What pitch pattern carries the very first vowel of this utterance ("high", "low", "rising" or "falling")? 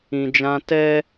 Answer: low